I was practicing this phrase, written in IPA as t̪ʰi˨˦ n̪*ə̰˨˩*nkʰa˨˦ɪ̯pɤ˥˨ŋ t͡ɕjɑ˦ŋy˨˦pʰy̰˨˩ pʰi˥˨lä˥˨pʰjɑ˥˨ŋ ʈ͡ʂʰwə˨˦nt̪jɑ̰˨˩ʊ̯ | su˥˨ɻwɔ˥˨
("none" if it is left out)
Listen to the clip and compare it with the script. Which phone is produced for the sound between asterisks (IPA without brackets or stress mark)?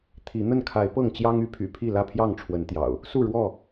ə˥˨